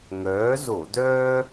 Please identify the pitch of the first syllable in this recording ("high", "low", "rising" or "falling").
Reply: rising